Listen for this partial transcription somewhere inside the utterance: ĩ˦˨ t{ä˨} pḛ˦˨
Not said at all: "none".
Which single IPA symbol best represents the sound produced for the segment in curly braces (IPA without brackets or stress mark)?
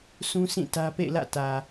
ä˦